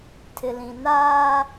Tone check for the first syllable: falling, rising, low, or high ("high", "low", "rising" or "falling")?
low